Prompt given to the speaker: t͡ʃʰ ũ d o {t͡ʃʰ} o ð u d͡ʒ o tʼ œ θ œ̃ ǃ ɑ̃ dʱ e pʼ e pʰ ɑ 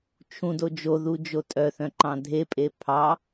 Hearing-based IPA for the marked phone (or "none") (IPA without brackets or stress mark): d͡ʒ